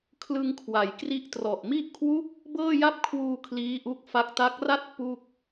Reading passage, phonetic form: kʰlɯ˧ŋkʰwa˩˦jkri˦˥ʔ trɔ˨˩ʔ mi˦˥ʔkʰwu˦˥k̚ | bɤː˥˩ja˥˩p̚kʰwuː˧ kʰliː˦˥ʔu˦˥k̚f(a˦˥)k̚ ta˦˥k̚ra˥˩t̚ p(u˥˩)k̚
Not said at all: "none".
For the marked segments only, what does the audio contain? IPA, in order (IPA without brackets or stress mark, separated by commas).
a˦˥, u˥˩